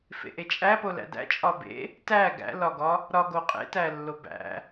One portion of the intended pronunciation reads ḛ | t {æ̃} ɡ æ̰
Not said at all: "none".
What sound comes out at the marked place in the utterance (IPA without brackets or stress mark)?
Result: æ